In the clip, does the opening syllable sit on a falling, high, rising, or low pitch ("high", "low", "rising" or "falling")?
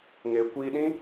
low